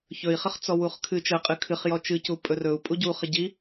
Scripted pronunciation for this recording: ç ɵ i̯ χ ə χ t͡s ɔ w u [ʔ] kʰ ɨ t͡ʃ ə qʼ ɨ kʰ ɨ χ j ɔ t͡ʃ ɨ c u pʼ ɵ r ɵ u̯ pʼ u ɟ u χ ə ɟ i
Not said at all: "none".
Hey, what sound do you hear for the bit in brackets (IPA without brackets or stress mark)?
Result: χ